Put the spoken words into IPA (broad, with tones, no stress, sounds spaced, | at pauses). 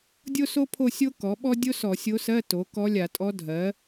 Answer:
dʲ o˥ s o˥ pʰ o˥˧ sʲ o˥ k ɔ˩˥ ɓ ɔ˥ dʲ o˥ s ɔ˧˩˧ sʲ o˧˥ s ɜ˧˥˧ t o˩˥ k ɔ˧˥ lʲ a˧˩˧ tʼ ɔ˧˥ dʱ ɜ˩˥